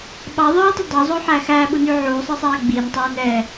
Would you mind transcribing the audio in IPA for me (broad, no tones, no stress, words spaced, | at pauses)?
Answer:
ɓɑðˤœːtˤu dˤozˤoħæ xæːɓuny ʕuːsˤisˤæː ɡ͡bintˤɛːn ɛː